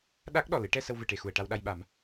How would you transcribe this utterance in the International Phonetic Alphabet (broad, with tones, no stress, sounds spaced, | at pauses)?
ɗ a˦˥ k̚ ɗ ɔ˨˩ l ɨ˨˩˦ ʈ ɛ˧ s ə˧ w v ɨ˨˩˨ ʈ e˨˩ x u˨˩ ə̯ ʈ a˧ w ɗ a˧ j ɓ a˨˩˦ m